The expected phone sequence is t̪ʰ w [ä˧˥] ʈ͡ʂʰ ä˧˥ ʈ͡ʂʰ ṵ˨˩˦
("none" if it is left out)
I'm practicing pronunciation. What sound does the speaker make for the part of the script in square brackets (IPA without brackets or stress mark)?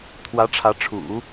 ä˧˥